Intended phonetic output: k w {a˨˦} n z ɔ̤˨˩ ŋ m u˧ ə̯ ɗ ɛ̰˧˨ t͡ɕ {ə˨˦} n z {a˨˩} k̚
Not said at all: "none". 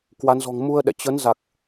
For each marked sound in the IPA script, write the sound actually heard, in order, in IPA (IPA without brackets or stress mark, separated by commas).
a˨˦, ə˨˦, a˨˩